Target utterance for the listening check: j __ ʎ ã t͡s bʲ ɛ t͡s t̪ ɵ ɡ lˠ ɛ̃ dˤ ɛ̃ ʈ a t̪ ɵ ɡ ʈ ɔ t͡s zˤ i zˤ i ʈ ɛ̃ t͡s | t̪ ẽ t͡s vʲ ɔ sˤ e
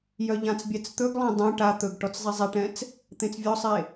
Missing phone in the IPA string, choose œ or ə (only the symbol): œ